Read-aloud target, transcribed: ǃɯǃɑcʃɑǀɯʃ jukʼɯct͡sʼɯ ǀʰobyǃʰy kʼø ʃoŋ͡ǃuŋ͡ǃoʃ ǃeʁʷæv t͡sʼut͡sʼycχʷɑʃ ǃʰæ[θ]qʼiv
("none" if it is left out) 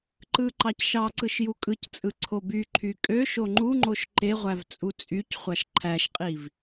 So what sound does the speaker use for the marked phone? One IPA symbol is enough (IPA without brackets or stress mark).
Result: ʃ